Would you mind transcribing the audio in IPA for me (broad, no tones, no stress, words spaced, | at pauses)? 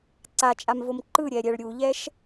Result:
ǀat͡ʃʼamvom ǃɯɾʲɛɾʲɛɭ ɾʲuʎɛʃ